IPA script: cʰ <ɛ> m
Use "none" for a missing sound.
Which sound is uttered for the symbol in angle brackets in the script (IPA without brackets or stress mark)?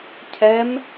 ɛ